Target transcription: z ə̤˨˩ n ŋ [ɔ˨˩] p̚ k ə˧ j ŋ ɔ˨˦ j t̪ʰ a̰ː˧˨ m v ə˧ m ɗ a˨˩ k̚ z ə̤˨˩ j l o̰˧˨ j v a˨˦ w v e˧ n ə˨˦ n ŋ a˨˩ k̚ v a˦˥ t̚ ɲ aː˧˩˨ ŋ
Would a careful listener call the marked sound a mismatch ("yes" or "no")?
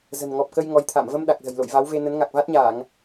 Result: no